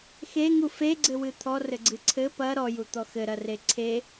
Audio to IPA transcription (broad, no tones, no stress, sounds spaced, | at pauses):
x e ŋ u f e ɡ͡ǀ ɘ w ɨ t̪ʰ ɔ r ɘ ɡ͡ǀ ɨ ǀʰ ɘ p ɐ ɾ ɔ j u t̪ ɔ x ɘ ɾ ɐ r e ǀʰ e